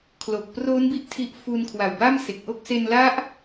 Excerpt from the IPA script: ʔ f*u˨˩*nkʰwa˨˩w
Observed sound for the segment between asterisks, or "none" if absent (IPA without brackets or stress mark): u˧